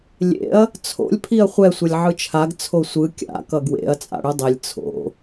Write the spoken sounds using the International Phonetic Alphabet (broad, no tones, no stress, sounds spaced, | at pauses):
lʲ ḛ ɐ̯ | t͡sʰ o̰ lʲ pʰ i ɐ̯ χʷ ɛ sʷ ʌ lʲ ʕ ɯ t͡ʃʰ a ɡ t͡sʰ o sʷ ɯ kʲ a̰ k ʌ ɡ w ḛ ɐ̯ t͡sʼ a̰ ɽ ɯ dˤ e lʲ t͡sʰ o̰